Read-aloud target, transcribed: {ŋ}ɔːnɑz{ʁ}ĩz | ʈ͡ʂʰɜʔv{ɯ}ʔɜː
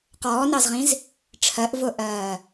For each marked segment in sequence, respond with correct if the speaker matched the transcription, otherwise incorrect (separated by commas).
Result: incorrect, correct, incorrect